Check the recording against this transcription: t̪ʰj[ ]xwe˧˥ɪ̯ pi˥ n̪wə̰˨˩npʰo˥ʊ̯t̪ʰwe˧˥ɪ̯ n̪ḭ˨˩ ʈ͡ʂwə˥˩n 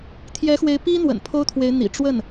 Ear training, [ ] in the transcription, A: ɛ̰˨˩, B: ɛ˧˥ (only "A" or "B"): B